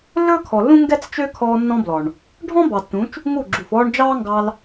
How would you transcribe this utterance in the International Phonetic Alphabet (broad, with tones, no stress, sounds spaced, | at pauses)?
lː ɵː˦ kʰ ɔ˨ lː ũ˦ ŋ ɡ ɛ˦ t͡s t͡ʃ ø˦ kʰ ɔː˧ nː ɔ̃˦ b l ɔ˨ ɳ | ɖʱ ɔ̃˦ b ɑ˨ tː ũ˨˦ t͡ʃ | ŋ u˦˨ ɡ͡ǁ u˨ f ɔː˦ ɳ d͡ʒ ɑː˦ ŋ ɡ ɑ˧ l